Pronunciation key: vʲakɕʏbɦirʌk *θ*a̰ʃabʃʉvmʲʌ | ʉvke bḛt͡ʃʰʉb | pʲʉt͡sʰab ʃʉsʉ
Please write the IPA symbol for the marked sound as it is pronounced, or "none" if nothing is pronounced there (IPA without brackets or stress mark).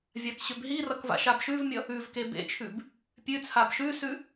v